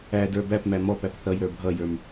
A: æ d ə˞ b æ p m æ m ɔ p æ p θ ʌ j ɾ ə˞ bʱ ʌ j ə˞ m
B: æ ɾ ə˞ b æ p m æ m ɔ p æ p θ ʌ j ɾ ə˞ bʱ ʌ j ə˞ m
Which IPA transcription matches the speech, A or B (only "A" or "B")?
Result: A